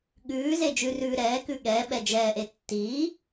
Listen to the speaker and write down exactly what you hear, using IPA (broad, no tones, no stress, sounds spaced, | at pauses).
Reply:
ɠ ʉː z e d͡ʒ ʉ r ʉː ɾ ɛː k ʉ ɠ ɛ ɓ ɛ d͡ʒ ɛː ʔ e tː iː